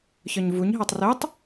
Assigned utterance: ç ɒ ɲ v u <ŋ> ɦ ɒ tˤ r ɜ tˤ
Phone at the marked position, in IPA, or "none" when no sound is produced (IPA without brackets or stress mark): ɲ